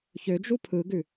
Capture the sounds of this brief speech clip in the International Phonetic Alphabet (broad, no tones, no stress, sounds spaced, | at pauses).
ç ø d͡ʒ u pʰ ɯ ɡ ʉ